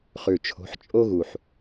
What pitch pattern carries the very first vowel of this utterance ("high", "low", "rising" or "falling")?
low